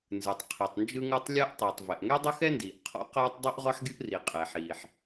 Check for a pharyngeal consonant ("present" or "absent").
present